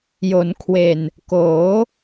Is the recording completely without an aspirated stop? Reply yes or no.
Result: no